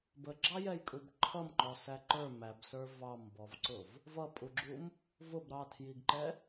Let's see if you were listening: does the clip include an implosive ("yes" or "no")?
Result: no